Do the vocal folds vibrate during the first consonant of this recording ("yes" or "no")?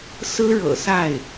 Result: no